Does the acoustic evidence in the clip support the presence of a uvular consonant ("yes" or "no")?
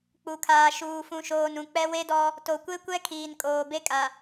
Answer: no